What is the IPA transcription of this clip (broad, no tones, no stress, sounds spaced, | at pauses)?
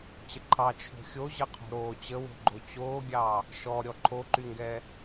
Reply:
t͡ɕ ə ǃʰ ɑ t͡ʃʰ o̤ xʲ o ʑ ə qʰ o̤ ɾ oː t͡ɕ ə w o̤ ɡ͡ǃ o t͡ɕ oː ɡʲ ɑː | ʃ ɔ ɾʲ ɔ ǃʰ o ǃ y ŋ ɡ ɛː